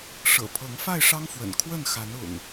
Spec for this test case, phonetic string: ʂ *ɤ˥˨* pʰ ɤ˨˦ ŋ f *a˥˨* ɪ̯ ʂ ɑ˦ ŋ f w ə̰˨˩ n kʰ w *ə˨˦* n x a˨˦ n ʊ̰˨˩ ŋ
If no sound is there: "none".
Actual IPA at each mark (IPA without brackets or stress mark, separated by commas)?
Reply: ɤ̰˨˩, a˥˨, ə˥˨